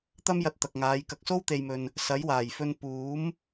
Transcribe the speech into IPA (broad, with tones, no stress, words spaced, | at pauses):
t̪ɐ˥mjɐ˧t̚ t̪ɐ˨k̚ŋaː˨˧j kɐ˨k̚so˥wt̪e˨jmɵ˨n | sɐ˨˥jwaː˨˩jfɵ˧n puː˨˥m